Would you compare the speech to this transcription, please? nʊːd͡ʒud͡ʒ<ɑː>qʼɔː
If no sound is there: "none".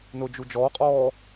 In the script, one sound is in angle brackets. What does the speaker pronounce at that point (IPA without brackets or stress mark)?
ɔː